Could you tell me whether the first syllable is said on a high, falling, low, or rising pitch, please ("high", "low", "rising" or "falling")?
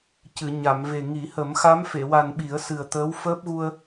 low